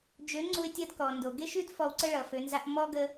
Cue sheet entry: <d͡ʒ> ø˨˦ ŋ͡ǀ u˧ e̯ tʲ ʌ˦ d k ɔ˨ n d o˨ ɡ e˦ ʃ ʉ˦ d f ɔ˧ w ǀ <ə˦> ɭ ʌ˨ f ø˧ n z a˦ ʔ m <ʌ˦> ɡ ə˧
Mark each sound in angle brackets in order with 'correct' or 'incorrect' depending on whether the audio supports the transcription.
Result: correct, correct, incorrect

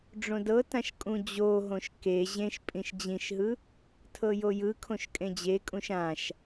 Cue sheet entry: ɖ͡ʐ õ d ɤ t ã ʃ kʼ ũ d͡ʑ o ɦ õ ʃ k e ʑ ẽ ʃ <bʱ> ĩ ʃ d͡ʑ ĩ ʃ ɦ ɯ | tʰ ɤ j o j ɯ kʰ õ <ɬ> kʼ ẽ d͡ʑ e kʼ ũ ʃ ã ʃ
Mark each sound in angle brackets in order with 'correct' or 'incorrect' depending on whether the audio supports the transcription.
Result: incorrect, incorrect

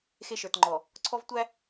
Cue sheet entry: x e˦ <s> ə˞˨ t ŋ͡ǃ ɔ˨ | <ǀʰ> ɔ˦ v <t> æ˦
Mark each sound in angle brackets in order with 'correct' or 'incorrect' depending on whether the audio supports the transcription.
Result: incorrect, correct, incorrect

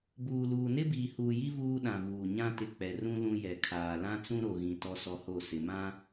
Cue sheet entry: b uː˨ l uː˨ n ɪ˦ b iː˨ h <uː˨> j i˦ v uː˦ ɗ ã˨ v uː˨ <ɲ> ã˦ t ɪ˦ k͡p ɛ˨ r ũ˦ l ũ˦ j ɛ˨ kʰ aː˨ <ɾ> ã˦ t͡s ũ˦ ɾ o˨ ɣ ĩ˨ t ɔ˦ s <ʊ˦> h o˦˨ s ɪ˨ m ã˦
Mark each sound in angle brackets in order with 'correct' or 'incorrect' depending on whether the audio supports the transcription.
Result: correct, correct, incorrect, incorrect

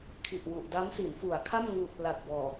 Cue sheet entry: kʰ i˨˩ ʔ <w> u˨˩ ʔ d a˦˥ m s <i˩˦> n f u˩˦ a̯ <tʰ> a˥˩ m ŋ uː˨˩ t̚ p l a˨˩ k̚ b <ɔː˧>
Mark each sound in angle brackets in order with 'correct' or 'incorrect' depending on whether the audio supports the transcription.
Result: correct, correct, incorrect, incorrect

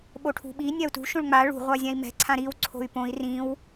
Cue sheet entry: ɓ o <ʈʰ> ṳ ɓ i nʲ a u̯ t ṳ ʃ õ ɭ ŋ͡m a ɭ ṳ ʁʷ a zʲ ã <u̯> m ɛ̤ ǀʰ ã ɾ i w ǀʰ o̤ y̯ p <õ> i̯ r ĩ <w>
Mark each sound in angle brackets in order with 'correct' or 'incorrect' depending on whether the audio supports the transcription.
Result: correct, incorrect, correct, correct

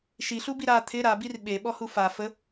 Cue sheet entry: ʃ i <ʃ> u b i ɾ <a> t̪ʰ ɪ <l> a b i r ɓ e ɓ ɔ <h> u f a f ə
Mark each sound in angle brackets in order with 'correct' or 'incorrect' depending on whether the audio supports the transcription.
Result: incorrect, correct, incorrect, correct

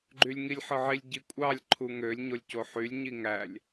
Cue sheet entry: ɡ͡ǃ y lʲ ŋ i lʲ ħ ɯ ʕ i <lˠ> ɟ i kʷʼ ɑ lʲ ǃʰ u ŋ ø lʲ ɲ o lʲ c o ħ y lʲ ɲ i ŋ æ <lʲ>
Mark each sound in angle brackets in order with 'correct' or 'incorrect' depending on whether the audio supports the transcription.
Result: incorrect, correct

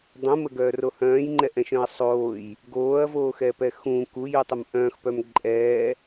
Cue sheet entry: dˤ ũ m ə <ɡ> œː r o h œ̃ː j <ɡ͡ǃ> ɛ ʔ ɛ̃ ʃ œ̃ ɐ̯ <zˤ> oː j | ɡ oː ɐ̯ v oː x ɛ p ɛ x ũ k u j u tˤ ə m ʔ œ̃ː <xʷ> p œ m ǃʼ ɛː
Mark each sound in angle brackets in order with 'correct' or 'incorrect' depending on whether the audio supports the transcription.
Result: correct, incorrect, incorrect, incorrect

